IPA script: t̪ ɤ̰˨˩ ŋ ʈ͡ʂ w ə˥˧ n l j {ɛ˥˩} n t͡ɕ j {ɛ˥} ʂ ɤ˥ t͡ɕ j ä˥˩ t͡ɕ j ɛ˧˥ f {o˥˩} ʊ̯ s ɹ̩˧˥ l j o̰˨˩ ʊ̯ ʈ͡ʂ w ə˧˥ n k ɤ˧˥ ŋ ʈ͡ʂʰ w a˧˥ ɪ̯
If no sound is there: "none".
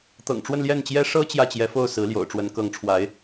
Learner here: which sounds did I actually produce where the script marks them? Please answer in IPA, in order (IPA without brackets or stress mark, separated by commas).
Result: ɛ˥˩, ɛ˥, o˥˩